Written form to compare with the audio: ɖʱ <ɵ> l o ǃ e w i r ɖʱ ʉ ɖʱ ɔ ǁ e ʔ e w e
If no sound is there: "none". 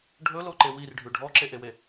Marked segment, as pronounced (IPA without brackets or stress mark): ɵ